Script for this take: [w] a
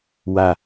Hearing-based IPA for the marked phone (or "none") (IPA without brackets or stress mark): w